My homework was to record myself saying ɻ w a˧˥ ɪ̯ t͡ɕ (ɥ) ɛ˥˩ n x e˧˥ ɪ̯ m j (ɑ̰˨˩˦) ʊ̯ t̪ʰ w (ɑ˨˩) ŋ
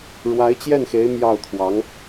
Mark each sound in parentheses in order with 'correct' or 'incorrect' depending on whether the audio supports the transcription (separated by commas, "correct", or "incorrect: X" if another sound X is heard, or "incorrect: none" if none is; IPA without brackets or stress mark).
incorrect: j, incorrect: ɑ˥˩, incorrect: ɑ˧˥